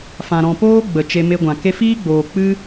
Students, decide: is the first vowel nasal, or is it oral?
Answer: nasal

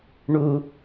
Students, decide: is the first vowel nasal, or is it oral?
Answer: oral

